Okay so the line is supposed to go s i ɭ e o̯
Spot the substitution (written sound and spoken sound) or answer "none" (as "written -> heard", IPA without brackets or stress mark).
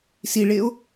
none